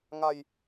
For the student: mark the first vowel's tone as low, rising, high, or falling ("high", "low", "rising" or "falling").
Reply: low